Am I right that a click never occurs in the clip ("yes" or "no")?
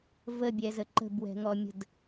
no